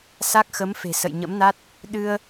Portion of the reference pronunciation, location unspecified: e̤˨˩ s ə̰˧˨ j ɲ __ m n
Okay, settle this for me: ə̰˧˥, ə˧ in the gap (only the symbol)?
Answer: ə̰˧˥